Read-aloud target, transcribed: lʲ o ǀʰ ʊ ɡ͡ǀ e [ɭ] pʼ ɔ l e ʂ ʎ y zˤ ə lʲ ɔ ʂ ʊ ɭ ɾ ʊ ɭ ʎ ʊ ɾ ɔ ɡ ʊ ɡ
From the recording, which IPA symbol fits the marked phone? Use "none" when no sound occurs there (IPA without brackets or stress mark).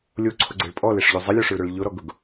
ɭ